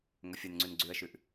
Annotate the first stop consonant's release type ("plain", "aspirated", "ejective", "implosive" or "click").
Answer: click